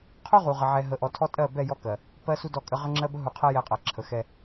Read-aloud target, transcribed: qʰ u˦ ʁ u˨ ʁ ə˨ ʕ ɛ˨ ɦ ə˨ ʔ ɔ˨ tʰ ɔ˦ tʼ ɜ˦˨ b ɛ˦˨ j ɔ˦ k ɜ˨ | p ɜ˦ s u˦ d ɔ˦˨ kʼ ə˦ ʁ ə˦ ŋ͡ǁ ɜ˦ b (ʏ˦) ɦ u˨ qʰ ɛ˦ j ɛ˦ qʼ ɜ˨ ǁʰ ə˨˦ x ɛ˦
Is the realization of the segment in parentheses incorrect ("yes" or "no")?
yes